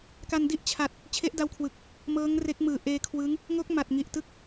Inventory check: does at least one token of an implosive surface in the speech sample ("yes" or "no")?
no